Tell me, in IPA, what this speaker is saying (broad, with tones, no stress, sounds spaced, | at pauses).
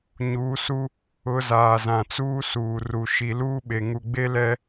ɲ uː˨˦ s u˦ | ʊ˨˦ z aː˨ z ã˨ t͡s uː˦ s uː˨ r u˨ ʃ i˨ l uː˦ ɓ e˨ ŋ u˨ ɡ͡b e˦ l ɛ˦